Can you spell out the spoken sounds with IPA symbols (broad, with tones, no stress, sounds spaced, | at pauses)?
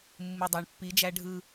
mː ɯ˨ dˤ æ˨ ɳ pː i˨˦ d͡ʒ æ˦ ɖʱ ɯ˦